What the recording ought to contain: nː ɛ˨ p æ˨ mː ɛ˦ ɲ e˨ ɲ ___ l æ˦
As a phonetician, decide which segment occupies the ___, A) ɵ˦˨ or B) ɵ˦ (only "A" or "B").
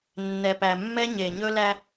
B